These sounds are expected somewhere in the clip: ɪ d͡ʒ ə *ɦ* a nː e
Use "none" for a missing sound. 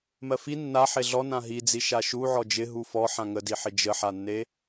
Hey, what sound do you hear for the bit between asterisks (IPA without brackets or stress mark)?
ħ